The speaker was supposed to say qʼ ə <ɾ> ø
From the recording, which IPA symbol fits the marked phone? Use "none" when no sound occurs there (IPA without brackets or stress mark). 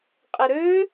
ɾ